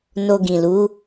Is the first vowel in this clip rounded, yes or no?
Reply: yes